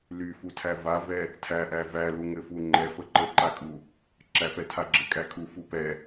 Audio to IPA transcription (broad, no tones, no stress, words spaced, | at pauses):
lyfutʰæ vavɛ | tʰæʔæ vælu ŋɘfuŋ͡ǃɛ fəǃəǃakʼu | ǁæfɛtʰaɡ͡ǁɘ kʼækʰu fupɛ